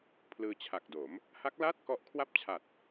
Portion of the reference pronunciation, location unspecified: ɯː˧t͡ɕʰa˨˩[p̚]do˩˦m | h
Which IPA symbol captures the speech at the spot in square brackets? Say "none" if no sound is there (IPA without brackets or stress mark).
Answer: k̚